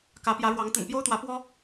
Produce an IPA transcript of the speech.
k ä˨˦ p j ä˨˦ ɻ w ɑ˨˦ ŋ t̪ ə̰˨˩ n p j o˦ ʊ̯ t̪ w ä˨˦ p w ɔ˦

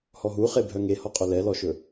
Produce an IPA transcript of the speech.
h ɔ ɦ u χ e bʱ œ ŋ e h ɔ qʼ ɵ l ɛ l ɔ ʃ ɵ

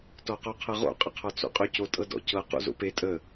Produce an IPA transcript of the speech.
t ɔ q ɔ qʰ ɤ ʁ o̰ qʼ ə qʰ ɔ t͡s o̰ qʼ ɵ c o tʼ ɤ d ɔ̰ c ɤ q o̰ z o̰ p e tʼ ə

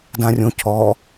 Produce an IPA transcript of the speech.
d ã rʲ õ cʰ ɔ

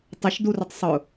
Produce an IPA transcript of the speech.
tˤ ɪ ʃ d u r ʊ tˤ sˤ ʊ

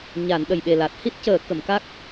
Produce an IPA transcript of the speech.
ɲ a˨˩˦ n ɗ ə˨˩ j ɓ e˨˩ l a˨˩ t̚ h i˦˥ t̚ c əː˨˩˦ k ə˨˩˨ m k a˦˥ k̚

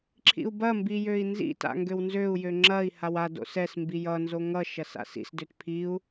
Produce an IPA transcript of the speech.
ǁʰ ḭ u̯ b ɐ m b i j ø i̯ n z ḭ t a̰ ŋ ɡ ø w n z ø u̯ j ø ŋ͡ǁ ɐ i̯ h a w a d o̰ s ɛ s m b i j ʌ n z o ŋ ʌ ʃ ɐ s a̰ s ḭ s d ø t pʰ i u̯

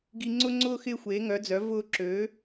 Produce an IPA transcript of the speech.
ɡ i˧ ŋ͡ǀ ʊ˥ ŋ͡ǀ ʊː˥ x ɪː˥ xʷ eː˧˥ ŋ œ˧˥ d͡z œ˧˥ v ʊː˥ ǁ øː˧˥

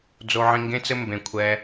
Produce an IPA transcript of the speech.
d͡z o˧ ʕ ĩ˧ ŋ ɡ ẽ˦ t͡s ɘ˦ m b ẽ˧ kʷʰ ɛ˦

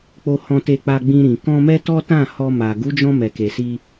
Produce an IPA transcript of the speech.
k͡p o˧ h ɔ̃˧ t e˧ k͡p a˧ ɡ͡b ĩ˧ ɾ ĩ˨ k ɔ̃˧ m ɛ˦ t ɔ˦ t ã˦˨ h ɔ˧ m a˨ ɡ u˨˦ d͡ʒ ɔ̃˧ m ɛ˨ k e˨ s i˧

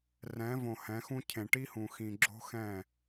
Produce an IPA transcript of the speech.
r ɛ̃˨˦ v õ˨ h ɛ̃˨˦ x ũ˦ cʰ ẽ˨ ʈ i˦ h ũ˨ x ĩ˨ ɡ͡ǁ o̤˦ x ɛ̃˦˨

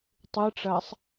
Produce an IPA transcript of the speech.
tˤ ɨ ʈ͡ʂ ɐː sˤ

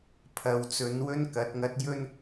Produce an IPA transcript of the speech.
pʰ ɐ˨ w t͡s ɵ˨˧ n w ɵ˥ n k ɐ˨˥ t̚ ŋ ɐ˧ t̚ j ɵ˥ n

